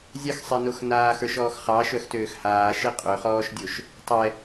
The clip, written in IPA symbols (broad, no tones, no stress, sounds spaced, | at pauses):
zʲ ɑ x sˤ e n o x n aː x ə˞ ʃ ɔː x χ ɑ ʃ œ x t øː x h aː ʃ e qʼ ø χ ɔː ʃ dʲ o ʃ | tˤ ɛ